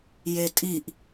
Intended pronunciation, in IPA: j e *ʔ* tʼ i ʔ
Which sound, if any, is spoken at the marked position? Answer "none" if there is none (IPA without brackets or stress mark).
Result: none